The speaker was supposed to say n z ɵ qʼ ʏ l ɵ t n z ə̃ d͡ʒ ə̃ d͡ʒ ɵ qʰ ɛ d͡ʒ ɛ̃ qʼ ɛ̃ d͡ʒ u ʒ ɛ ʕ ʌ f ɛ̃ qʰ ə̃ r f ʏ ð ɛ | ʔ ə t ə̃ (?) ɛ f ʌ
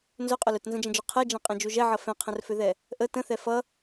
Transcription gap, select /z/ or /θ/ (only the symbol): θ